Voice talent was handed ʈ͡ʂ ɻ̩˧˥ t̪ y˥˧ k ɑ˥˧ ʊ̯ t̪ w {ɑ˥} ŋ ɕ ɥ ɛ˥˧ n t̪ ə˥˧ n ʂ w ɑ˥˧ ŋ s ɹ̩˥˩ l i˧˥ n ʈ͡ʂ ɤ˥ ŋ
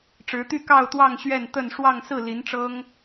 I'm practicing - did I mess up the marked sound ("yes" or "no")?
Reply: yes